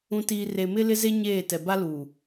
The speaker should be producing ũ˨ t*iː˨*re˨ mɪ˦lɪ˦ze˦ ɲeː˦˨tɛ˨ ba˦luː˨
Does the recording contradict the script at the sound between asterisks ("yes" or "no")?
no